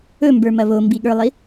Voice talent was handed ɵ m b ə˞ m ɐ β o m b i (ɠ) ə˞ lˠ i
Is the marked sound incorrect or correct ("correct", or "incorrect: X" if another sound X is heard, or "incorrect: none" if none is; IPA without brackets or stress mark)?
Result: correct